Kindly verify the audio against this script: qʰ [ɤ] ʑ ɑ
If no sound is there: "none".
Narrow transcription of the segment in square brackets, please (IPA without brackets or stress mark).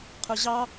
ɵ